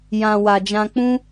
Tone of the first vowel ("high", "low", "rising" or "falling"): low